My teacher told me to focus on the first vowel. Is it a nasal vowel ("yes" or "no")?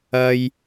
no